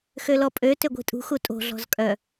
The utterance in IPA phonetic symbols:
xølɔpʼø tøɡʷi̤tʼṳ xutʼo̤ ɮɔ̤zkʼœ

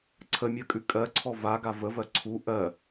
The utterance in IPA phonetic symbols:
ǀʰəmʲɜkʼʉ kʼɜǀʰɔ vaɡa vəvɜ ǀʰu ʔɜ

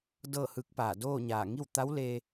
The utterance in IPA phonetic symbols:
dɤː˥˨hɯː˧˥k̚paː˧˩ doː˥˨ɲaː˧˩ ŋi˥˨wt̪a˧˥wle˧

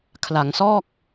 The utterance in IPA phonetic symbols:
kʰla˩˦ŋsɔː˥˩k̚

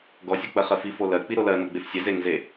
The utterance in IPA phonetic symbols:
ɡɔsʲɔk͡pɜ χɜfi folɜ k͡piɾolɜ nɔɡ͡befsʲɛ zeŋze

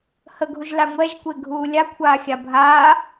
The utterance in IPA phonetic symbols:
həɡʱuʒla ŋʷɛʒkʷeɡʱuː lʲakʷʰaːxʲa bʱaː

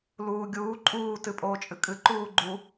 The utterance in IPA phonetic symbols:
luːɡʲuː ǃʼuː tɨpʼoːt͡ʃʼɨkʼɨ ǃuːɡ͡ǃu

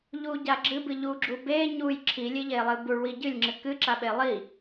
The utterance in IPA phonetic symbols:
ʎuɟa ɡ͡ǁɨbɨ ʎuɡ͡ǁu be ɲuj ǁʰilʲeʎelˠɨ buɭwi ɟɨlʲŋ͡ǁɨ kɨǁaɓe lˠi

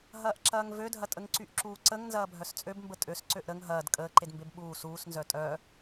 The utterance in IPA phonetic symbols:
ɦɐːʔǁɐːŋvødʱɐ tʼəŋǀyʔǁuːǀəŋ nzɐːbʱœst͡sʼøb mbətʼøs ǀøʔɾəŋ ɦɐːd kʼəːǃedmbeb ɓuː suːsnzœ tʼœː

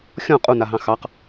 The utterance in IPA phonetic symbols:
xʲɔ̃ qʼunaɦɑ̃ xɑq

